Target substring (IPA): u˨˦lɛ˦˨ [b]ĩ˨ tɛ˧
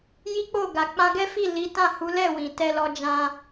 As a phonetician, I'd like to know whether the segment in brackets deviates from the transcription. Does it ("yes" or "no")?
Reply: yes